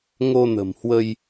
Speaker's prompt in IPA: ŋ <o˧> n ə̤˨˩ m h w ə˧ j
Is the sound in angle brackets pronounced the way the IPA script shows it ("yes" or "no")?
yes